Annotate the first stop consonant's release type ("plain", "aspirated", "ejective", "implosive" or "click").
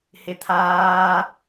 aspirated